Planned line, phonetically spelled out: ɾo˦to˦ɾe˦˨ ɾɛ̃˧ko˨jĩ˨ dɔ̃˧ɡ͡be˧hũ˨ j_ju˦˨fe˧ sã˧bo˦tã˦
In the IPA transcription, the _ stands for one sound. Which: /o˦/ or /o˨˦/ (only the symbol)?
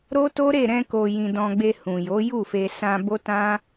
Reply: o˨˦